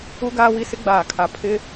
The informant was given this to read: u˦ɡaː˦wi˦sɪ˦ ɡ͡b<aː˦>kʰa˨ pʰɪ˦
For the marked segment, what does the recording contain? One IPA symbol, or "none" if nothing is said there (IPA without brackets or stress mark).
aː˨